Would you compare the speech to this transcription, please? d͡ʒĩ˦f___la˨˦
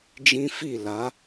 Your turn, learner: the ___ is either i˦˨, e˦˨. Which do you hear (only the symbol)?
i˦˨